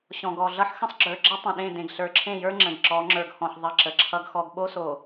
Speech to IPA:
ɕɔ̃˨ɡɔ˨ɮʌ˦ħ xə̃˦sˤɡ͡ǁə˞˨ɡ͡ǁə˦ tˤə̃˨ ɗẽ˦˨dẽ˨ɡ ɬə˞˨ǁʰẽ˦˨jə˞˦ ŋ͡ǁə̃˨ɡǁɔ˨˦ ŋ͡ǁə˞˨ɡhɔ̃˨ħ ðˤʌ˦ǁə˨˦ǁʰʌ˦ɡxɔ˦ɡ ɓo˦so˨

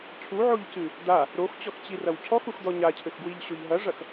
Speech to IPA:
cʰuʕoʎcɨ | d̪a | ɾoxt͡ɕɔxt͡ɕirɐw cʰɔxuxd̪ɔ ɲacʰɘxɡwiʎɕoʎ ɦɐʐɐx

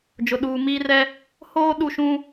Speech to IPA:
d͡ʒʊ˨ɗuː˨miː˦rɛ˦ | hoː˦ ɗu˦˨ʃũ˦

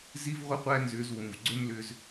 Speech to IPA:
zi˦vʁʷə˦qʷæ˦nzʏː˧z wũ˨v ɡ͡ǀʏ˦m lʏː˧z

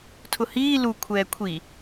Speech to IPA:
tʰʊhiː lu kʷʰɛːkʷʰi

